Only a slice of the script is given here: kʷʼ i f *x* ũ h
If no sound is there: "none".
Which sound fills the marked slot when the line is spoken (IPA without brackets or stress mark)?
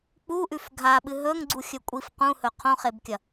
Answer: q